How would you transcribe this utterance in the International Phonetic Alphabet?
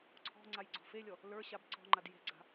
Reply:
ǀʰ ɔ̤ ŋ͡ǀ a j ɡ͡ǀ ɔ̤ f e lʲ ɔ | l ə˞ ɕ a b ǀ ɔ̤ ŋ͡ǃ a d j e̤ ɡ͡ǀ a̤

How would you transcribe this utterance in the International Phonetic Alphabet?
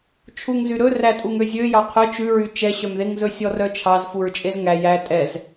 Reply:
t͡ʃʰ u ŋ z y ɾ ɵ r æ tʼ u ŋ ø zʲ ø j ɑ qʰ œ t͡ʃ ʉ ɹ y t͡ʃ ɛ ɕ œ m ð e ŋ z ɵ sʲ ɔ r œ t͡ʃʰ ɑ z f u ɹ t͡ʃʼ e z ŋ æ j æ tʼ ɛ z

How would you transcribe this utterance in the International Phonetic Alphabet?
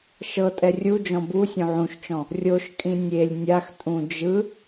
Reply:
ʃ ɤ tʼ ɛ rʲ u d͡ʒ ɔ̃ b u sʲ õ ʕ ũ ʃ t͡ʃ ɔ̃ | rʲ o ʃ kʼ ĩ nʲ e lʲ nʲ a x tʼ ũ d͡ʒ ɯ

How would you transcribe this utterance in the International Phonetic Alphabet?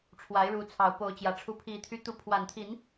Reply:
ʈ͡ʂʰ w a˨˦ ɪ̯ ɻ u˨˦ t͡sʰ ɑ˨˩ ʊ̯ p o˨˦ ʊ̯ t͡ɕ j ä˨˩ ʈ͡ʂʰ u˦ pʰ i˨˩ t̪ʰ y˦ t̪ u˨˦ pʰ w a˨˩ n t̪ʰ i˨˦ n

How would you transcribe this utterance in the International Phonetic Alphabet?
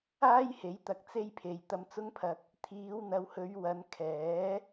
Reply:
aː˥ j h e˨˥ j t̪ ɐ˨ k̚ t͡s e˥ j pʰ e˨ j t̪ ɐ˧ m t͡s ʊ˥ ŋ pʰ ɐ˧ k̚ | t̪ʰ iː˨˧ w n̪ ɐ˨˧ w h ɵ˨˧ ɥ w ɐ˨˧ n kʰ ɛː˨˥

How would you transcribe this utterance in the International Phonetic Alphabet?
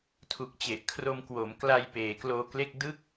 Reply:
tʰ u˨˩ k̚ t͡ɕ e˨˩ ʔ kʰ r o˧ m k w o˩˦ m k l a˧ j p eː˩˦ k l oː˧ k l e˥˩ k̚ d ɯ˥˩ k̚

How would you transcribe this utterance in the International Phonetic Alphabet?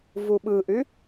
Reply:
v u ɓ ɯ ʔ y

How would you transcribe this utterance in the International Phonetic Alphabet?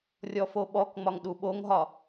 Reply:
rʲ ɔ f o ɓ ɔ k ŋ͡m ɒ ŋ ɗ u ɓ o ŋ ɦ ɒ

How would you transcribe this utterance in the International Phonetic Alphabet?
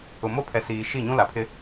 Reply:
ʊ˨ m o˦ pʰ ɛ˨ s iː˨ ʃ i˦˨ ɲ ũ˦ l a˨ pʰ ɪ˦

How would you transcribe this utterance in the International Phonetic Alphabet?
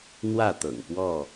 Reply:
n̪ w ä˥˨ t̪ ɤ̰˨˩ ŋ p w ɔ˥˨

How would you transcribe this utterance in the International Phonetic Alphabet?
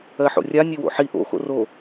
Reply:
ɜ ħ o̰ rʲ a nʲ e w o̰ ħ i ʔ o̰ x o̰ r o

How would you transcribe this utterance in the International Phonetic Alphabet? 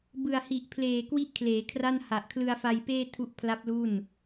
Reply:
b ɯ˨˩ a̯ h i˨˩ ʔ pʰ l eː˨˩ k w i˥˩ ʔ kʰ l eː˩˦ kʰ r a˥˩ n h a˨˩ ʔ kʰ l ɯ˧ a̯ f a˧ j p eː˥˩ tʰ u˦˥ ʔ pʰ l a˦˥ p̚ l u˥˩ n

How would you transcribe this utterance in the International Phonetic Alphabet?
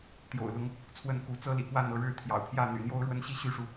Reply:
t̪ j o̰˨˩ ʊ̯ l ʊ˨˦ ŋ | t͡sʰ w ə˥˨ n k u˨˦ t͡s ɤ˦ l ḭ˨˩ k w a˥˨ n ɤ˥˨ ɻ ɻ̩˥˨ t̪ʰ j ɑ̰˨˩ ʊ̯ pʰ j ä˥˨ n̪ y̰˨˩ n̪ j o˦ ʊ̯ ɻ w ə˦ n ɕ i˦ ɕ y˦ ʂ u˨

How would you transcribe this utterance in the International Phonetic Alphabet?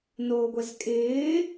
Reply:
n oː ɡʷ ɛ z kʼ ɪː

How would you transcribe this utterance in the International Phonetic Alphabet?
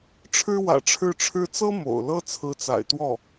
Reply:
ʈ͡ʂʰ ɻ̩˥ w ä̰˨˩ ʈ͡ʂʰ ɻ̩˥˩ ʈ͡ʂʰ ɻ̩˥ t͡s ɤ˥ m o̰˨˩ ʊ̯ l ɤ˥ t͡sʰ ɹ̩˧˥ t͡s a̰˨˩ ɪ̯ t̪ w ɔ˥˩

